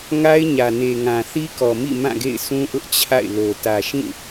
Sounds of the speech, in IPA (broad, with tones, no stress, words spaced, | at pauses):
ŋa˦ɪ̯ɲä˨ne˨ ŋã˨θi˦kɔ˨mḭ˦˨ mã˦˨ɡḛ˦˨ɪ̯ sũ˦ʔʊ˦ʔ t͡ɕʰa̰˦˨ɪ̯ lo˨ tä˨ʃĩ˦˨